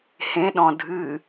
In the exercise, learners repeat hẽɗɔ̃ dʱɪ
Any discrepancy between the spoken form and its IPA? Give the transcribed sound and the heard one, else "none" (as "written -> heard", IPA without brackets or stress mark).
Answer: ɪ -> ɨ